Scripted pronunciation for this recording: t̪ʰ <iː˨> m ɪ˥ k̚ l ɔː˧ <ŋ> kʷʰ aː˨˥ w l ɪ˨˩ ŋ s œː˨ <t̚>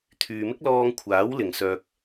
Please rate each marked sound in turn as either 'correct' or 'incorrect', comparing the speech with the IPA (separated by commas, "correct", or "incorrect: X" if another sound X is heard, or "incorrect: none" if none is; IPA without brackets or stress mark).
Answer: incorrect: yː˨, correct, incorrect: k̚